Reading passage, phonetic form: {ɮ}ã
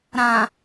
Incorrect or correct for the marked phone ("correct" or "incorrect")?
incorrect